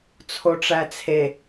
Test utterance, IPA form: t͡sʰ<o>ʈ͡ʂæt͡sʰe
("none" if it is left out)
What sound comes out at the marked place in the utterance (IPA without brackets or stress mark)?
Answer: o